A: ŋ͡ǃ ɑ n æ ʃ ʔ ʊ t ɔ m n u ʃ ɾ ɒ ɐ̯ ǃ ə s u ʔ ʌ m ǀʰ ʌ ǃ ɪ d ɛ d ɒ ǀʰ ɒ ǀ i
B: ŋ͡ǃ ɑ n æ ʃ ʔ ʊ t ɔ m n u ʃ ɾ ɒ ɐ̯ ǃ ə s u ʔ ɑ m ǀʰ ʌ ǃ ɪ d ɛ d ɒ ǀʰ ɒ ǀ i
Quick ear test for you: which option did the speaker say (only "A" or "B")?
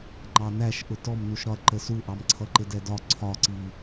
B